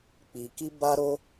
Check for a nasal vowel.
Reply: absent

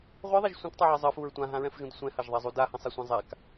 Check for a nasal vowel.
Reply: present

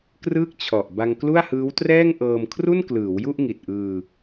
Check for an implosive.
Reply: absent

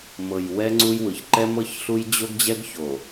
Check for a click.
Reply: present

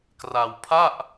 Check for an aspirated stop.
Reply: present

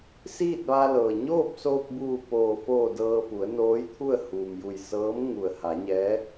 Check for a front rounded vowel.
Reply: absent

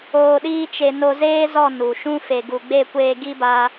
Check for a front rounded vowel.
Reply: absent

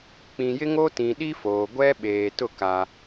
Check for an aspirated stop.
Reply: absent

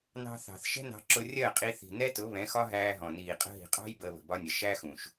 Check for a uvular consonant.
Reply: present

